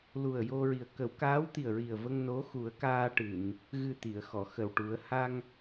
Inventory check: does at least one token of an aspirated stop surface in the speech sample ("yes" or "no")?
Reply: no